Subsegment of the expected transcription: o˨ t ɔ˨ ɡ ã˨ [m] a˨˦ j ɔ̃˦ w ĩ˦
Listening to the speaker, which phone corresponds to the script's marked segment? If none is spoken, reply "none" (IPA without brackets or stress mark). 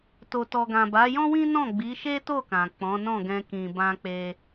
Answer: b